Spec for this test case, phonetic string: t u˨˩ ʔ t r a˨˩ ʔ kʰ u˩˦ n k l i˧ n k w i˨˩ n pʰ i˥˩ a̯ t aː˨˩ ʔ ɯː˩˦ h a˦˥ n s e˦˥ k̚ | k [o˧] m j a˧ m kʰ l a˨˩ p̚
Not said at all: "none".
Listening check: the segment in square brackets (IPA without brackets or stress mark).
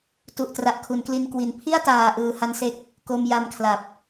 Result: o˧